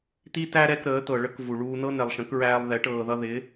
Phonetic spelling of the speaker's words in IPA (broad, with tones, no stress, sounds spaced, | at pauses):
t̪ i˦ t æ˦ ɾ ɛ˧ k ɾ əː˨˦ t̪ ɤ˨ ɭ ə˦ k v u˨ ɭ uː˧ n̪ ɤ˦ n e˨ lˠ ʃ ə̃˨˦ k ɹ æː˧ lˠ ð ɛ˨˦ ʈ ɤː˨ ð ʌ˧ ð ɪ˨˦